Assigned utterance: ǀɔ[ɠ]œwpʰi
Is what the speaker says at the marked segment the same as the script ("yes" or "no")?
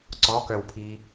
no